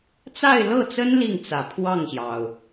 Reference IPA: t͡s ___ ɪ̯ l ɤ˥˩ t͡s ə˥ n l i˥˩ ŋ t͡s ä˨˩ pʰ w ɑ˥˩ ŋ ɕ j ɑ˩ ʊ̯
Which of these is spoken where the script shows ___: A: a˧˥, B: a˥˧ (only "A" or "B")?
B